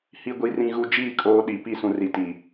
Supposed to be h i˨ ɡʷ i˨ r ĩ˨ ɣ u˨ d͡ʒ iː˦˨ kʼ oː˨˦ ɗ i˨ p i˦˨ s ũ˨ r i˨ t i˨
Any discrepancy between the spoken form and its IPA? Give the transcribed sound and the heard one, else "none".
none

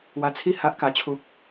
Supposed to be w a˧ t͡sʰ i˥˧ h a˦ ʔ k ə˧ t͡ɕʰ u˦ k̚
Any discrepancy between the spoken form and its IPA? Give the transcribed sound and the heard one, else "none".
ə˧ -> a˧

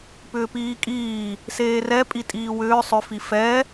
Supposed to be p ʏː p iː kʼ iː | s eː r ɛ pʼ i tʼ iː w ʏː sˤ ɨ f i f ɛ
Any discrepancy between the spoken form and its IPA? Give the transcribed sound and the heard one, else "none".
ɨ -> ʏ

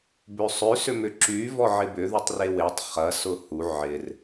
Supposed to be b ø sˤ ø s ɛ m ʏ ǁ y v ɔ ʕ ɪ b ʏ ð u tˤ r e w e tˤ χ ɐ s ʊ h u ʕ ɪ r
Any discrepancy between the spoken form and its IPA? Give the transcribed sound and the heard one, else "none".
ɛ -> ʏ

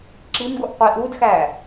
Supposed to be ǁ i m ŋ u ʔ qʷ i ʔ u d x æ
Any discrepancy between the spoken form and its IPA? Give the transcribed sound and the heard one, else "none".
ŋ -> ɡ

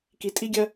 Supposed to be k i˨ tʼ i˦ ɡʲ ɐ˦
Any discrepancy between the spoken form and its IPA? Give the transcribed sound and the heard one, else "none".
none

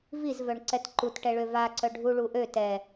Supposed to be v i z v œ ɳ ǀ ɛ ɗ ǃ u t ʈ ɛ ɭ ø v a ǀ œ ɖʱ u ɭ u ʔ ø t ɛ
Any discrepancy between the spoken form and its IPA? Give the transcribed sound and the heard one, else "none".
ɗ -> t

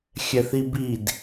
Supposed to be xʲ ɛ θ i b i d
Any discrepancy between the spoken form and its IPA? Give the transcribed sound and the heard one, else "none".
none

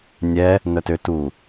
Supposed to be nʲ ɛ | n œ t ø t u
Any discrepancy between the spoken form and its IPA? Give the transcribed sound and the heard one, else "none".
none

